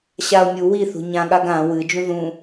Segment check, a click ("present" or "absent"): absent